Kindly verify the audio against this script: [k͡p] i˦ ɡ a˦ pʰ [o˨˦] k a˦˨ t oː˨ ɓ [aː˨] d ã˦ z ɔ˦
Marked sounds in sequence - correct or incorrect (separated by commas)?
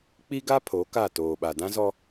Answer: correct, correct, incorrect